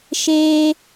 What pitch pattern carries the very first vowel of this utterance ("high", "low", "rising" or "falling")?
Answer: high